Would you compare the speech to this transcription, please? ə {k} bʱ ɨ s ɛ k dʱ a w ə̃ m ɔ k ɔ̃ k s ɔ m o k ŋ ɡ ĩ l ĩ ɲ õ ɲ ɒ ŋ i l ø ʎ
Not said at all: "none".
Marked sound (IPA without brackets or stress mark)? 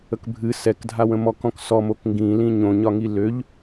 k